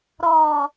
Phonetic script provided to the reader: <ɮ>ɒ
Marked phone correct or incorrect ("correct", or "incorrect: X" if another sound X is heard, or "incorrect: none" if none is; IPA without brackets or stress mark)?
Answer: incorrect: ɾ